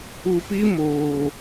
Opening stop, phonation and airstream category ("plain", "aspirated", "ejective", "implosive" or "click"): plain